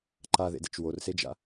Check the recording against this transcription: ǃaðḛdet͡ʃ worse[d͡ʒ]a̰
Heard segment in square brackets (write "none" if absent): d͡ʒ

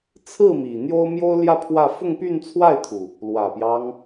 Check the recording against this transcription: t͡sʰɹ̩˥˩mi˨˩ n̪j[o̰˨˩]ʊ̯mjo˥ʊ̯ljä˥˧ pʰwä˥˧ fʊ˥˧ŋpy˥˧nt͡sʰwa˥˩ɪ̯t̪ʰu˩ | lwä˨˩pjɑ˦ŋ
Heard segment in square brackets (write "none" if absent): o˥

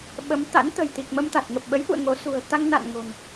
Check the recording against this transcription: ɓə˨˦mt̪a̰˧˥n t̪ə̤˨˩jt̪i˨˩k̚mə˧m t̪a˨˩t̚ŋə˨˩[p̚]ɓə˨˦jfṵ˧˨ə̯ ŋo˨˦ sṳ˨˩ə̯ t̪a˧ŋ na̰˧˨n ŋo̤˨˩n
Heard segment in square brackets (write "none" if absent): p̚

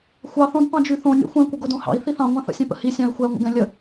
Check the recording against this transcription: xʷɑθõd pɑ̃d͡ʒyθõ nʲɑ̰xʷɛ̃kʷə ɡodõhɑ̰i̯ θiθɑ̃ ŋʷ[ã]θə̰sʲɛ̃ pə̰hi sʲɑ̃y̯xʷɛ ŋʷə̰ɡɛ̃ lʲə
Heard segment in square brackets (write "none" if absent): ã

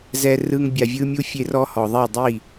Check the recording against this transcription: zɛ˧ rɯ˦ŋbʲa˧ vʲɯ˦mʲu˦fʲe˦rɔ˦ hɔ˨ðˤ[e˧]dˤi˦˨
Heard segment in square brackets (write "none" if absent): e˦˨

